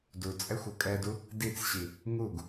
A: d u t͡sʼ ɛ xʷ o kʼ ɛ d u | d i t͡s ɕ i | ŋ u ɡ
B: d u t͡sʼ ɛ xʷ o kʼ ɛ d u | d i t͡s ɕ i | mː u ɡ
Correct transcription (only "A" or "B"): A